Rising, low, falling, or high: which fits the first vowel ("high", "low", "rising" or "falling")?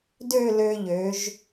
falling